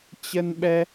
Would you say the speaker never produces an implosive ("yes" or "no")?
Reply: no